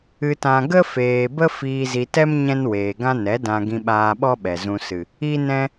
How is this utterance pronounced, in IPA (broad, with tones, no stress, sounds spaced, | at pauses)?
ɨ˧ t ã˧ ɡ ə˦ f eː˨ b ə˦ f iː˧ z i˧ t ɛ˦ m ɲ ɛ̃˦ n w eː˨ ɡ ã˦ n ɛ˨˦ d ã˧ ɡ ĩ˧ ɓ aː˧ ɓ ɔ˦ ɓ ɛ˨ z ũ˧ s ɨ˨ | i˦ n ɛ̃˦